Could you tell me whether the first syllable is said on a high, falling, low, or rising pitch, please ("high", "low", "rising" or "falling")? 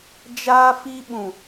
high